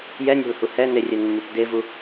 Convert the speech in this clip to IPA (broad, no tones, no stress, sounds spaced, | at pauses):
j ɛ nʲ a̤ l h u h ɛ n e rʲ ɛ n mː u p d e v u